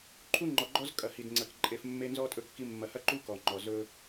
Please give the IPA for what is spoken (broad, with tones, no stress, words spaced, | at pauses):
ǃʰu˦ŋ͡ǃɔ˨ɡ͡ǃɔ˦z kʼɐ˨hi˨dŋ͡ǀɐ˨k ǃʼe˨f mːe˦nzɔ˦tʼɵ˦˨kːi˦ mːɐ˨hɐ˦ǃu˦ kɔ˨ŋ͡ǃɔ˨ zɵ˦